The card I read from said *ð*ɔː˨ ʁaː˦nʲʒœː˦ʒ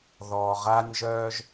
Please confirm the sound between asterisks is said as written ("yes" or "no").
yes